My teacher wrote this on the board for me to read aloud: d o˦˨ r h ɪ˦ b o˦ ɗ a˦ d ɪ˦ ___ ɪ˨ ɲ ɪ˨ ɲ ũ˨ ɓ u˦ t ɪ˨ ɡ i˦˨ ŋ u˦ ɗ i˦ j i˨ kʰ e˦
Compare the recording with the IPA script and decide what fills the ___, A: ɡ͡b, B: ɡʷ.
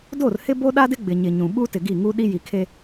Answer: A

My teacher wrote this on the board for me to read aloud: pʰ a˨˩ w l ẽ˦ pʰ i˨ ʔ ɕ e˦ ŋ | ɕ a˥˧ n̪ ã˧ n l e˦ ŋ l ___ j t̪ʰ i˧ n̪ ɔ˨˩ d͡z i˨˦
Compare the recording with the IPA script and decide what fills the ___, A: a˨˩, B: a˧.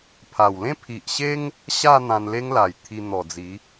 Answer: A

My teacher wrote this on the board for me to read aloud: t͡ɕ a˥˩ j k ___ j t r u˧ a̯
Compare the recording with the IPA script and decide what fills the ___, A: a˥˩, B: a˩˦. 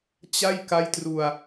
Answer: A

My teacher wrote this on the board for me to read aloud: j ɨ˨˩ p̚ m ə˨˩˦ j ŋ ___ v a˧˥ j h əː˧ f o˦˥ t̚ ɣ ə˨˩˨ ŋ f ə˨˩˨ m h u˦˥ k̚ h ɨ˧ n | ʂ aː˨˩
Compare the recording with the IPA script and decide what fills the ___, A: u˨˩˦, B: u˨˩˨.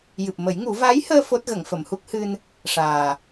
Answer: A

